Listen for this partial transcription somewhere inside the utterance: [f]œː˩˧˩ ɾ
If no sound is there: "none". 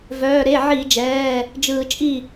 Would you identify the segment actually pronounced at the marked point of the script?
v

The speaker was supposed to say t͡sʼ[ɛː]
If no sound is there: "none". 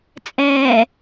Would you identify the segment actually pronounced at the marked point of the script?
ɛː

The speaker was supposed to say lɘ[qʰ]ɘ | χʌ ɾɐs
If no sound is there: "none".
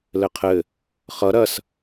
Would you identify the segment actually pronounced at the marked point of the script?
qʰ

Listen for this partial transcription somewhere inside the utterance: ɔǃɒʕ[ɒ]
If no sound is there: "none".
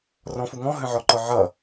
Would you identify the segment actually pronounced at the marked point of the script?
ʌ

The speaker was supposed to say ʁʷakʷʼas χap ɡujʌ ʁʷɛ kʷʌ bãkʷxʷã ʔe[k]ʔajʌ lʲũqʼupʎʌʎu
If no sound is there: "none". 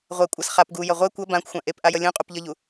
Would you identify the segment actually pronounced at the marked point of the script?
p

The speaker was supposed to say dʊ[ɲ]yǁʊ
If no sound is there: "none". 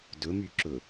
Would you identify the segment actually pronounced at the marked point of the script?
m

